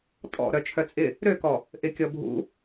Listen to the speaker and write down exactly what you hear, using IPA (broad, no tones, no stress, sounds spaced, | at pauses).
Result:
tʼ ɔ̰ ɾ œ t͡ʃʰ œ t͡sʼ ɪ | ɾ ø k ɔ | ʔ ɪ kʲ ɔ bʱ ṵ